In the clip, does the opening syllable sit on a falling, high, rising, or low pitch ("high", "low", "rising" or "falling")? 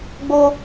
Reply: high